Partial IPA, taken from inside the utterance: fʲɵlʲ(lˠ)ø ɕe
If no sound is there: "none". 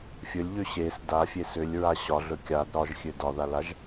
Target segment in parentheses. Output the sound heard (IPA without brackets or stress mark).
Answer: ʎ